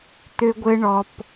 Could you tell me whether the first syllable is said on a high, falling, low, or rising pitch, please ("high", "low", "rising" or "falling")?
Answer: high